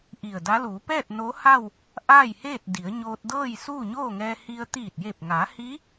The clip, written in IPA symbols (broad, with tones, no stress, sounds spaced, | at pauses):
ʔ i˧˩ ə̯ d a˧˥ l uː˩˧ p ɛː˥˨ t̚ n o˧˥ h a˥˨ w | ʔ aː˥˨ j h eː˥˨ t̚ d i˩˧ ə̯ ɲ oː˧ t̚ d ɤː˥˨ j s uː˥˨ ɲ oː˥˨ ŋ ɛː˧ h i˧ ə̯ t̪ iː˧˩ t̚ j e˧˩ p̚ ŋ a˩˧ h i˧˥